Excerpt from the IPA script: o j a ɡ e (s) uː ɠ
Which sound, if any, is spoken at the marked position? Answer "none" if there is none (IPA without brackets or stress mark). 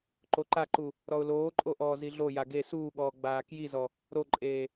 s